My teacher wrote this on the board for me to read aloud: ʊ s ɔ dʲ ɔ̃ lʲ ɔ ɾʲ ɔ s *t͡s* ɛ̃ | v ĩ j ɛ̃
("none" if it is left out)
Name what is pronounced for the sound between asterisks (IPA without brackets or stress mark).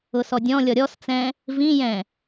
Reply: t͡s